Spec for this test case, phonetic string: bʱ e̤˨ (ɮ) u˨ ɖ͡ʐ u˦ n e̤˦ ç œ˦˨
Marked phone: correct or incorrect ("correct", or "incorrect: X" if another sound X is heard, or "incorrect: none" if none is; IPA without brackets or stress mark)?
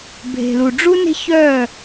incorrect: l